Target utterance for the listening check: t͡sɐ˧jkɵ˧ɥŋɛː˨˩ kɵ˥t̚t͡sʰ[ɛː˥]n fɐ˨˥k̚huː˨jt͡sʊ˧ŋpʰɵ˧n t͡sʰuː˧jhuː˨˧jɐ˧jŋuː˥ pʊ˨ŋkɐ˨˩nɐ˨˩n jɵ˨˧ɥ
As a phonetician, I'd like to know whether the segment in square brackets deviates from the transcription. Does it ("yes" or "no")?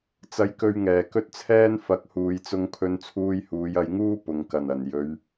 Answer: no